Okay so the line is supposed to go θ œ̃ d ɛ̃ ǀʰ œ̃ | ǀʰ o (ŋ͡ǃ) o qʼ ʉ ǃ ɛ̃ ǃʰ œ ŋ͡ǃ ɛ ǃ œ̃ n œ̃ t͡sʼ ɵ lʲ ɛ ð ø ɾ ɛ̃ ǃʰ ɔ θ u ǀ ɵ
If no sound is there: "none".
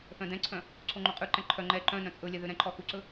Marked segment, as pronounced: ŋ͡ǃ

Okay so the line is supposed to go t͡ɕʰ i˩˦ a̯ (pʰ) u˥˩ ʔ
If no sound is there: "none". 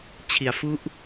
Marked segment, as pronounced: f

